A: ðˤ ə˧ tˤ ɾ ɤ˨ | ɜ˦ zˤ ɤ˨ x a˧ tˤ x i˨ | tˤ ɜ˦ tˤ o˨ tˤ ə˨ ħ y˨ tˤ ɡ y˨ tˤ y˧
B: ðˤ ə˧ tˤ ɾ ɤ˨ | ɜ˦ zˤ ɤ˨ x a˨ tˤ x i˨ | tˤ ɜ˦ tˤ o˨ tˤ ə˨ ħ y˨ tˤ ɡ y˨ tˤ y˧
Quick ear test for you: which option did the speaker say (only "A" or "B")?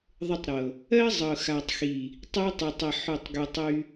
B